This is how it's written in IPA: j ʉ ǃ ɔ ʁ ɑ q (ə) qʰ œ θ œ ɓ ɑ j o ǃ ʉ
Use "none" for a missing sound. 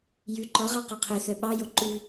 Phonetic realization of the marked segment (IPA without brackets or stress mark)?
ɔ